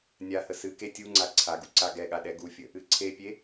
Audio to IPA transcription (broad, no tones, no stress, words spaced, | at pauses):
nʲahə sɨke tʲuŋ͡ǀa ǀʰaɡu ǀaɡɛɠa ɗɛɡufʲə | ɨǀʰepʲe